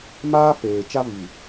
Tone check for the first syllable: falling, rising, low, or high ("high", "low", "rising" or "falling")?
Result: high